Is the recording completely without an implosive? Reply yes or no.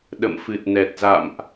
no